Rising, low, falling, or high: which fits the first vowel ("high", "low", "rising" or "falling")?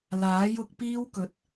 rising